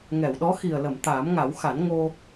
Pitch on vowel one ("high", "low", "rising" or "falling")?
low